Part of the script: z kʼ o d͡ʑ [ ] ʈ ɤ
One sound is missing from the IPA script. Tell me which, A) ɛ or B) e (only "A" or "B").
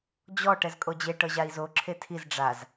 B